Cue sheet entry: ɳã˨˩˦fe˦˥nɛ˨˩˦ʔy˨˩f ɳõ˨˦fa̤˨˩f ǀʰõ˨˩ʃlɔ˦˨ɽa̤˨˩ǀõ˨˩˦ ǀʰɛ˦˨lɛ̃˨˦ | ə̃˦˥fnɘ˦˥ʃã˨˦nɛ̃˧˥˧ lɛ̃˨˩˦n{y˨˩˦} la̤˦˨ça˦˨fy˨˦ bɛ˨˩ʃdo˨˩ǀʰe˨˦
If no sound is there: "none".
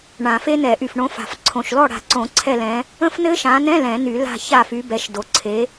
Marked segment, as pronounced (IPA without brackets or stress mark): y˨˩˦